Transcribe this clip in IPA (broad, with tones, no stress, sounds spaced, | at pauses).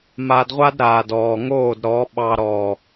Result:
m a˧ d ʁʷ a˦ d ɾ aː˨ d ɔː˨ ŋ oː˦˨ d ɾ ɔ˨˦ ɓ ɑ˧ ɾ ɔ˨